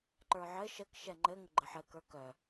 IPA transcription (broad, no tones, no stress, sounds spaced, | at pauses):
ǃ ə˞ ʕ ɘ ʃ ə k ʃ ɛ ŋ͡ǃ ɘ ŋ ə ɡ͡ǃ ə ħ ɘ k ə˞ k œ